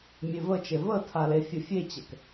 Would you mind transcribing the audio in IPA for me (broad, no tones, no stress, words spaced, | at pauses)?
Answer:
mʲevət͡ʃe vətʰa lefʲəfʲet͡ɕɛk